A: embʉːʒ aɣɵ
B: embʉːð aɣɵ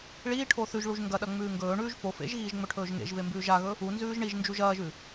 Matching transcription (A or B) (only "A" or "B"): A